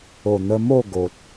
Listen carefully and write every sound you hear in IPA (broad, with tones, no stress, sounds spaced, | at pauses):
o˨˩ n̪ ə˧ m o˥˧ ɡ o˨ t̚